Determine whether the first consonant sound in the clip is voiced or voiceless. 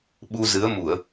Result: voiced